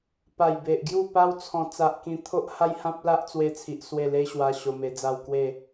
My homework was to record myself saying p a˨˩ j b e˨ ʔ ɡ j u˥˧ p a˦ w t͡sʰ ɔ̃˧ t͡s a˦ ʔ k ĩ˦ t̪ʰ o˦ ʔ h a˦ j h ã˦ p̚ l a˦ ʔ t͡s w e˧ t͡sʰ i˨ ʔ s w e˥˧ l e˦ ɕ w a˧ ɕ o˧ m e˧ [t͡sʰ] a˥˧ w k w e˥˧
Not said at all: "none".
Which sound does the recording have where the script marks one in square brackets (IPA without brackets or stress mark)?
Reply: d͡z